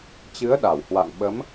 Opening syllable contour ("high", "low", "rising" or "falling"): rising